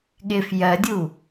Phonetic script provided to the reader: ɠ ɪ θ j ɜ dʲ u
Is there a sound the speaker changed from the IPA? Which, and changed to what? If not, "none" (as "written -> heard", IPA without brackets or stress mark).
θ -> f